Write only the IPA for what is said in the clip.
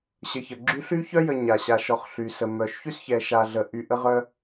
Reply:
ɕ ə˨ ç ə˩ ɡ͡ǁ y˦ ɬ y˥ ç œ˥ j ə˨ ɲ a˩ ɕ a˨ ʃ ɔ˨ χ ɬ y˩ s ə˩ m œ˩ ʃ ç y˥ s ç ɛ˨ ʃ a˨ ɮ ə˩ ʔ y˨ ʔ ə˦ ʁ œ˦

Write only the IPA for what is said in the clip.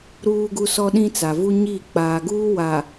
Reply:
ɾ uː˦ ɡ u˦ s ɔ˦ ɗ ĩ˦ t͡s a˨ v u˦ ɲ iː˦˨ k͡p aː˨ ɡ uː˦ w aː˨

